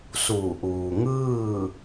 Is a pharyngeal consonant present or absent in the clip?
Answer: absent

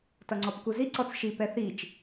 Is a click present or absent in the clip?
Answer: present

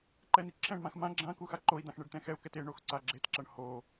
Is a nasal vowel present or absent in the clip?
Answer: present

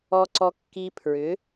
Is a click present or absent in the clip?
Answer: present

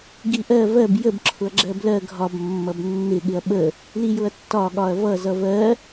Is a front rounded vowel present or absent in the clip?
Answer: absent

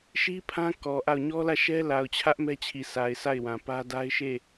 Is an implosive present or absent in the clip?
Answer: absent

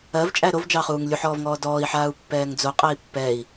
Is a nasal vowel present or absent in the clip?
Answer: absent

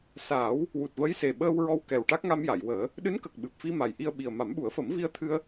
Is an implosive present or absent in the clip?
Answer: present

